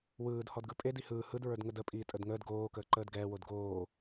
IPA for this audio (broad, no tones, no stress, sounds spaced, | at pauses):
w ɯː d h ɔ d ɡ ɯ pʼ e d i h ɯː h ɯ d ɹ ə˞ d ŋ ə d ə pʼ iː tʼ ə d ŋ əː d ɡ oː k əː ǃ əː d ɡ ɛː w o d ɡ oː